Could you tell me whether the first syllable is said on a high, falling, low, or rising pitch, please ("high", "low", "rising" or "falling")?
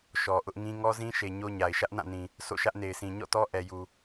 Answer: low